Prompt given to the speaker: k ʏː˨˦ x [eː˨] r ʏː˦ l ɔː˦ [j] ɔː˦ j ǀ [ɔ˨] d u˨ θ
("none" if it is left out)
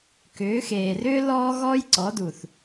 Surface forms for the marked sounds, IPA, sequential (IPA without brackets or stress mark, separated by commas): eː˨, ɣ, ɔ˨˦